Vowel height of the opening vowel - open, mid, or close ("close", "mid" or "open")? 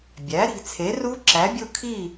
open